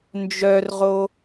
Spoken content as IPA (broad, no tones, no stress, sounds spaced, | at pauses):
n d͡ʒ œ r ʁ o